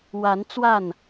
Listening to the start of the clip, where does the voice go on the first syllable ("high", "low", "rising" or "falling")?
rising